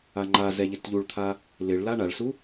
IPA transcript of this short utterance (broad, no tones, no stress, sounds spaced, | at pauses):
a ŋ͡ǃ a z ɛ ʎ ɪ t ʎ u ɭ t̪ʰ a | l ɪ ɭ l a ɳ a ɭ s u